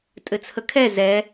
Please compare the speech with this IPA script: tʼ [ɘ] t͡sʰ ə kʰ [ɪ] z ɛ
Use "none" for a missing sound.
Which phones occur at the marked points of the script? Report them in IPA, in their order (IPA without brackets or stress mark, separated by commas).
ɘ, ɛ